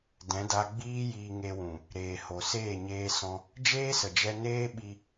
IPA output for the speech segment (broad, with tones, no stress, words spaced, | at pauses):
dɛ̃˨˦da˧ɡ͡biː˦jiː˧ ŋe˧wũ˨ | ɾeː˨ho˨seː˦˨ ɲeː˧sɔ̃˧ | d͡ʒeː˦sə˨d͡ʒɛ˧neː˦ ɓi˧